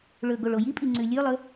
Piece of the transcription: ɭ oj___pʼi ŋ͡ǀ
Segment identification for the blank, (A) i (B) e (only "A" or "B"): A